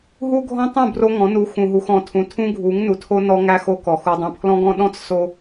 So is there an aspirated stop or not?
yes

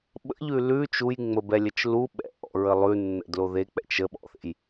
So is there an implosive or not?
yes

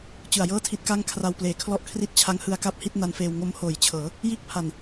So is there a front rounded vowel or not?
no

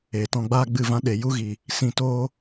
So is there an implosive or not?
yes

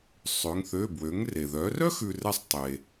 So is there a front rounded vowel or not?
yes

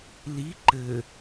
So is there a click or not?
yes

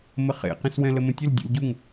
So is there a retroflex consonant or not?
no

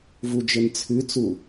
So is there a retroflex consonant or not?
no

